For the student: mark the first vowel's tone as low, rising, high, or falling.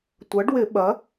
rising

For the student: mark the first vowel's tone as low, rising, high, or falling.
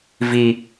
high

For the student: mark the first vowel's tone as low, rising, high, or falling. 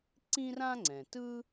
high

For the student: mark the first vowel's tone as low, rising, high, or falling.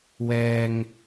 low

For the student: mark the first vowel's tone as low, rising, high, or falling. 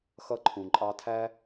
high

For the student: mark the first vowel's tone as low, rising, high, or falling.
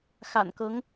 low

